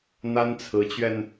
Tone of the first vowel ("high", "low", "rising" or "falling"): high